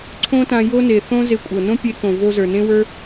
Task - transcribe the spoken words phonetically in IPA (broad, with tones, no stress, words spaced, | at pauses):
ǀʰõ˦tã˧jo˦ne˨ θõ˦ ze˧kʷʼɤ˨ nõ˦pʲe˧kõ˨ vo˧zə˞˨nẽ˦wə˞˦